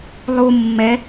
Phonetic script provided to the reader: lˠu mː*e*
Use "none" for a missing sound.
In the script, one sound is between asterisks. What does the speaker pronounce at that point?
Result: ɛ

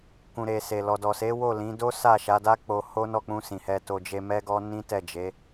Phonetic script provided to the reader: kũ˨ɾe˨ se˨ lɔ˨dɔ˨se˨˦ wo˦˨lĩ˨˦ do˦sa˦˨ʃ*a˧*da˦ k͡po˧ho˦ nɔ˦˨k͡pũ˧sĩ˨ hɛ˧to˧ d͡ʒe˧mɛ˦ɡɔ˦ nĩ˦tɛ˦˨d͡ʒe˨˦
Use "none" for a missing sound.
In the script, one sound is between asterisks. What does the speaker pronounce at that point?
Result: a˨˦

